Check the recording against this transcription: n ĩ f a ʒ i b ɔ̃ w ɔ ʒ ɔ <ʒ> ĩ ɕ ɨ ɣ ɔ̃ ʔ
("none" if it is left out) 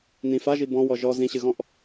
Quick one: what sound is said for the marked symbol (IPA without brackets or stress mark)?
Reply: z